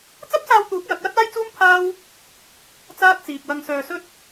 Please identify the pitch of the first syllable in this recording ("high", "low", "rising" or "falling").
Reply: high